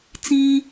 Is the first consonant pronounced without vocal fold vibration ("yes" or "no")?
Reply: yes